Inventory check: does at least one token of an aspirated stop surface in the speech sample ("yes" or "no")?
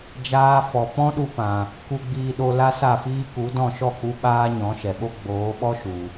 no